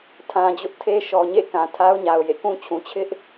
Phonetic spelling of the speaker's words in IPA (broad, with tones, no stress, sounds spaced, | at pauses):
tʰ ã˨ d͡ʑ ʊ˦ ʔ tʰ e˦ ʃ ɔ˨ ɲ ḛ˦˨ k ã˨ tʰ a˦ ʊ̯ ɲ a˨ ʊ̯ j ḛ˦˨ k ũ˦ t͡ɕʰ ũ˨ t͡ɕʰ ɪ˦ ʔ